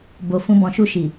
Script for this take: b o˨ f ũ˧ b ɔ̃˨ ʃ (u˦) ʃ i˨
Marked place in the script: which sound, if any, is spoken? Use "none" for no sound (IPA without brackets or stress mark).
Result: u˧